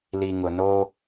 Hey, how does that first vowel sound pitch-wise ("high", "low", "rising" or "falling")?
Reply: low